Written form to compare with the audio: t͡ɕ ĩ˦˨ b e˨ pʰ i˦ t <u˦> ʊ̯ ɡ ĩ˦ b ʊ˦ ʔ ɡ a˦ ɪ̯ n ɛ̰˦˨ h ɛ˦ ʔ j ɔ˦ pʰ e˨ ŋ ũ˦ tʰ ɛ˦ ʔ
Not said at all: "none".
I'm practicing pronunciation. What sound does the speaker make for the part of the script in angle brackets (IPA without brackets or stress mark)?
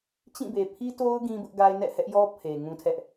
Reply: o˦